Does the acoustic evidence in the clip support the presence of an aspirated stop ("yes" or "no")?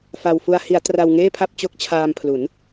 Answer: yes